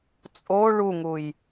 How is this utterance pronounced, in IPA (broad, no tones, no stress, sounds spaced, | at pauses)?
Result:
t͡sʼ o ɭ u ŋ u j